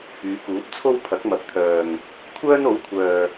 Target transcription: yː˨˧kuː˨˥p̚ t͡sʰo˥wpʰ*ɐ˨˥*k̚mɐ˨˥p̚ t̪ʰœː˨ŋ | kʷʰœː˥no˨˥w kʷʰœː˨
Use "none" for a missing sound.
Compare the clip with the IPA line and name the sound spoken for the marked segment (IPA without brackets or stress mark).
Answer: ɐ˨˥